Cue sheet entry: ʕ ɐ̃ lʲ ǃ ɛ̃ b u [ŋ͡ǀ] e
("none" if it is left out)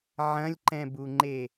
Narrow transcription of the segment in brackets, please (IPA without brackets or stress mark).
ŋ͡ǃ